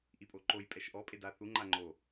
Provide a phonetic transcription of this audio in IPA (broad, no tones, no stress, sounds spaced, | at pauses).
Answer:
ʔ i pʼ o ǃ o j pʼ ɛ ʃ ʔ ɔ pʼ e d a θ u ŋ͡ǃ a ŋ͡ǃ o